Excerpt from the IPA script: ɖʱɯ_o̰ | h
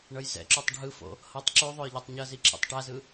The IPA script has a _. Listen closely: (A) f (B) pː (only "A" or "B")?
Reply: A